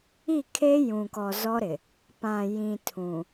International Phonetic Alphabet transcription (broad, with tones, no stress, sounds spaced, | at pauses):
i˦˨ kʰ e˦ j ũ˨ k ɔ˨ z ɔ˦ ɾ ɪ˨ | p ã˨ j ĩ˨ tʰ ũ˨